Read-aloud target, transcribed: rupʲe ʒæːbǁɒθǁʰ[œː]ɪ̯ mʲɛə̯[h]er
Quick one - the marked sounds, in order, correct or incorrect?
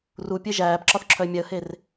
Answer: incorrect: œ, correct

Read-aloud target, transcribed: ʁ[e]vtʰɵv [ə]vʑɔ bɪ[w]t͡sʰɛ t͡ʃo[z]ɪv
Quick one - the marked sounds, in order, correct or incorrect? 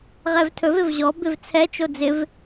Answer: incorrect: ɛ, incorrect: ɪ, incorrect: v, incorrect: d͡z

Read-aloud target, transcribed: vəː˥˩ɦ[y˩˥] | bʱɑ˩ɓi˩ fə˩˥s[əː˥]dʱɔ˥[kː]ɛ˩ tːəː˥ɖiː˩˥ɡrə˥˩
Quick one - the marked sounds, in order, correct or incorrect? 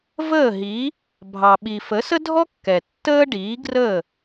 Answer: incorrect: i˩˥, incorrect: ə˥, correct

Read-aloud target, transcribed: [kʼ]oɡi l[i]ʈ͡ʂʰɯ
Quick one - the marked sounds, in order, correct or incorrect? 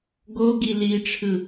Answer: incorrect: ɡ, correct

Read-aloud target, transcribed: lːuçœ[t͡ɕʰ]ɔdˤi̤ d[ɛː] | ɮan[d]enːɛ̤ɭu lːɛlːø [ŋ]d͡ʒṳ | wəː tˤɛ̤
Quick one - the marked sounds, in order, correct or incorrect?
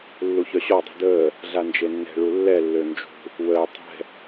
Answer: incorrect: ɕ, incorrect: əː, incorrect: d͡ʒ, incorrect: n

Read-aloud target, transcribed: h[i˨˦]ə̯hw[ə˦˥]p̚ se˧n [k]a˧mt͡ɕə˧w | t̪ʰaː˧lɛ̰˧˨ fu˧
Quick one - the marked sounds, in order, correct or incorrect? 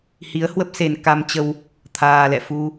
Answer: correct, correct, correct

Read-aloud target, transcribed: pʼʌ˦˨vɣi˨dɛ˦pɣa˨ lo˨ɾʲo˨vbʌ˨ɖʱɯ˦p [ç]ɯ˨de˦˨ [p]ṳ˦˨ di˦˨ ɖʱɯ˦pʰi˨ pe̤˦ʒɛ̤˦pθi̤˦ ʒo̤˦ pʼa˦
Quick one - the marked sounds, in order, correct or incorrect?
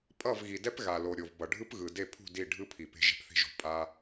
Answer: incorrect: ɣ, incorrect: pʰ

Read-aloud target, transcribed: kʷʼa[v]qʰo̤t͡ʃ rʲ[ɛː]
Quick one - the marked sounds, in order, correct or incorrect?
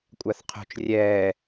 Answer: incorrect: θ, correct

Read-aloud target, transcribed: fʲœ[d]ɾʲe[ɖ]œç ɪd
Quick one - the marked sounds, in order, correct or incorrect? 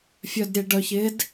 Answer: correct, correct

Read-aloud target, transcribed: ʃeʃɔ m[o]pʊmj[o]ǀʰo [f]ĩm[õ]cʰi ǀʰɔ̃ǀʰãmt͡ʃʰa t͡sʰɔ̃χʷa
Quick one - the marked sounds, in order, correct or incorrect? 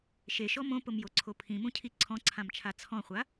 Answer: incorrect: õ, correct, incorrect: pʰ, incorrect: ũ

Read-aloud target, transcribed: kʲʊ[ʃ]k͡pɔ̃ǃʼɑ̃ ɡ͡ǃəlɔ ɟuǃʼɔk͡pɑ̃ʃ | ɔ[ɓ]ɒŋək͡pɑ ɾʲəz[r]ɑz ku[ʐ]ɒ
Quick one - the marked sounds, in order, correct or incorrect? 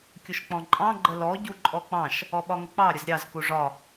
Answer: correct, correct, incorrect: ɾʲ, correct

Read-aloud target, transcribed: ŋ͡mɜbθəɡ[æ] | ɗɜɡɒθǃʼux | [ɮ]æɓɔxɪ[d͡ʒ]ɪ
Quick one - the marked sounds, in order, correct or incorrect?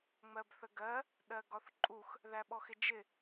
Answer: incorrect: ɜ, incorrect: ð, correct

